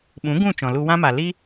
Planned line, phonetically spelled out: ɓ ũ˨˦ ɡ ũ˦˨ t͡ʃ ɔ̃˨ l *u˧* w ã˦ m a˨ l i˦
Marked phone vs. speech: correct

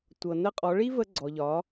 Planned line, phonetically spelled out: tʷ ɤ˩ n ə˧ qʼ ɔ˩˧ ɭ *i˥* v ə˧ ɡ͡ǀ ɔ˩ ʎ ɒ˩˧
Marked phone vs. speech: correct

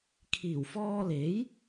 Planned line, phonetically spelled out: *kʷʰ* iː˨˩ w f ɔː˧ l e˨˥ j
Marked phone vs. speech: incorrect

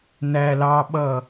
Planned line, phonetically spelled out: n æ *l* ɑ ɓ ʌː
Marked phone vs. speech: correct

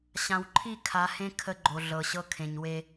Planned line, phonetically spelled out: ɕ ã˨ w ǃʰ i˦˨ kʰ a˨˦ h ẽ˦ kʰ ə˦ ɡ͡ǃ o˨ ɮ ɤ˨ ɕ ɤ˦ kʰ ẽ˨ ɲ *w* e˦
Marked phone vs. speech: correct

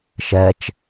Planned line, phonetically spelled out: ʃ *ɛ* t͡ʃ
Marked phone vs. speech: correct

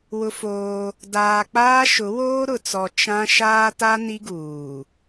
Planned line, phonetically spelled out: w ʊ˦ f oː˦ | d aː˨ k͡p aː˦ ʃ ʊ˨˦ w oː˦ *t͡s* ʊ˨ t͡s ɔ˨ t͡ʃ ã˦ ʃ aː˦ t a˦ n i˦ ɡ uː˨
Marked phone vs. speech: incorrect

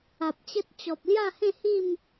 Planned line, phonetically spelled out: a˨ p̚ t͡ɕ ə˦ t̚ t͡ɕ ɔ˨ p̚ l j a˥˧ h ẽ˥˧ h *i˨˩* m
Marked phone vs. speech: incorrect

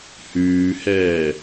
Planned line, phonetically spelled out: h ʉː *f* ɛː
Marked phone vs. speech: incorrect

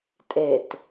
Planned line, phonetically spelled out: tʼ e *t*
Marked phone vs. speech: correct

